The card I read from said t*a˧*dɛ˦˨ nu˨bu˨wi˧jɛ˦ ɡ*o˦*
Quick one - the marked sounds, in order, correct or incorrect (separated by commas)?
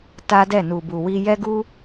incorrect, incorrect